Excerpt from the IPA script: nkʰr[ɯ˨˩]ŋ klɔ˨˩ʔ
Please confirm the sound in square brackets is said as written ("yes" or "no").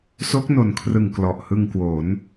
yes